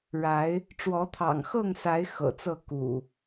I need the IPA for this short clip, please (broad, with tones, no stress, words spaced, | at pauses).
ɻa˨˦ɪ̯ | ʈ͡ʂwɔ˨˦t̪ʰɑ̰˨˩ŋxɤ˥˨ŋsa˨˦ɪ̯ xɤ̰˨˩t͡sɤ˥˨ kṵ˨˩